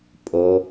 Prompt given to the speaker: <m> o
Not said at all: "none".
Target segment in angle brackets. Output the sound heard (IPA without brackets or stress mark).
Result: pʼ